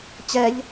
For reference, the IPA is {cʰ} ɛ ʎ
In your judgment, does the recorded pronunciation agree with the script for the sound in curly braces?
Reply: no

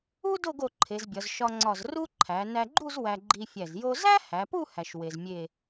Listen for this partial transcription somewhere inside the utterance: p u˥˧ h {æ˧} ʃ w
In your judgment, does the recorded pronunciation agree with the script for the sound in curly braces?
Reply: yes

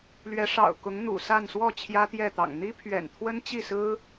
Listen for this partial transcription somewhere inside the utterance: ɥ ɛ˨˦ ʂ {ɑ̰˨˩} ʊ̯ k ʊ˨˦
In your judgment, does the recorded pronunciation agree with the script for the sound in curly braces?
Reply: yes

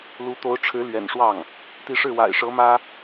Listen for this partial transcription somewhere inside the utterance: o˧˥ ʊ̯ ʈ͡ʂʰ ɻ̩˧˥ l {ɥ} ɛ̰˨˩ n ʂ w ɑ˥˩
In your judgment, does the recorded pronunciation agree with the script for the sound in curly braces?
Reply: yes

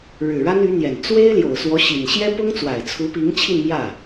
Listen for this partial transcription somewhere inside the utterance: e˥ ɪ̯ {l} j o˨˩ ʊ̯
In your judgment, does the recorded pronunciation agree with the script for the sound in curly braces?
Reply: yes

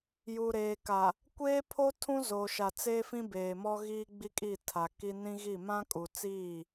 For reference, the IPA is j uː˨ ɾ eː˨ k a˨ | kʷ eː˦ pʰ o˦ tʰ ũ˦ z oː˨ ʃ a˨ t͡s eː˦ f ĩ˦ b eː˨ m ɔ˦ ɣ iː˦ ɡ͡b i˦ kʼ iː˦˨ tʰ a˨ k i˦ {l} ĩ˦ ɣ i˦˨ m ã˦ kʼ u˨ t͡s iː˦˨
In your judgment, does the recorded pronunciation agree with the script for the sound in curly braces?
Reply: no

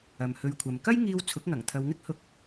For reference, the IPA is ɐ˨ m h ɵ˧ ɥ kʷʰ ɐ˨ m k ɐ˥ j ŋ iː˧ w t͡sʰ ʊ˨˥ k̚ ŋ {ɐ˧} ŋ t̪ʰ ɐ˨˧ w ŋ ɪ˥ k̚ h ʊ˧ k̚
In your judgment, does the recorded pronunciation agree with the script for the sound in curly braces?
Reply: no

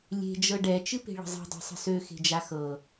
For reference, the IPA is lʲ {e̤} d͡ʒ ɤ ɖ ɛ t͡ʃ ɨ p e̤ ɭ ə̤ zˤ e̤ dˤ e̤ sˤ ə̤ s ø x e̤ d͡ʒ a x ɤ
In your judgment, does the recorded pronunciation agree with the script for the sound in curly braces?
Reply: yes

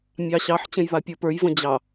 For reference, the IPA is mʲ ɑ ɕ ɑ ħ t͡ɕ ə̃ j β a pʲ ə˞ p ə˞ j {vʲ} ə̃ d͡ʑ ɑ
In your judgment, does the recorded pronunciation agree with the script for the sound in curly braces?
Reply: no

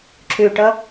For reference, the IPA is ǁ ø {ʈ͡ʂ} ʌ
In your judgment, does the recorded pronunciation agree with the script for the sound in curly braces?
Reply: no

